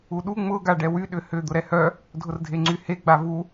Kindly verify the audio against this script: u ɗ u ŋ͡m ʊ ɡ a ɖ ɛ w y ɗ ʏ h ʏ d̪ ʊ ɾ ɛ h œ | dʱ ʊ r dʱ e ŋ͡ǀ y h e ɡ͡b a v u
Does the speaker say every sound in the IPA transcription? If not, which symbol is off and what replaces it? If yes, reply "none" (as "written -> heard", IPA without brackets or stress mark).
none